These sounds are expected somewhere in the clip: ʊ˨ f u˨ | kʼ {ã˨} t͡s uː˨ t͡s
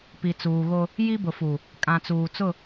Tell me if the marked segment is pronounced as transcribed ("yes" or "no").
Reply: yes